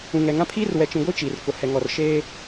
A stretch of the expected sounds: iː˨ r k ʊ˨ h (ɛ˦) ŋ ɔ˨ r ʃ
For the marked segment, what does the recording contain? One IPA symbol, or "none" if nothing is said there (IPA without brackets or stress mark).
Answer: ɛ˨